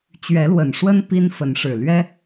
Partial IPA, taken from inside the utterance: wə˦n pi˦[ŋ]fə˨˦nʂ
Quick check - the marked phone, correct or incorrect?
incorrect